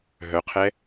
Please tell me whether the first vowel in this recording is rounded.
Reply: yes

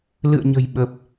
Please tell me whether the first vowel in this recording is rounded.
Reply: no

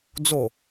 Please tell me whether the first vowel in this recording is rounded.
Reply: yes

